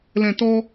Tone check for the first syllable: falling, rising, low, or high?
low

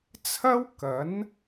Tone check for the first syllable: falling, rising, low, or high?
high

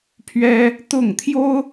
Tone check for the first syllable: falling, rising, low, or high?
high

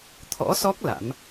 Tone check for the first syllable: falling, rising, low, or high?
rising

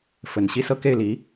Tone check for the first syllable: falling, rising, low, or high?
low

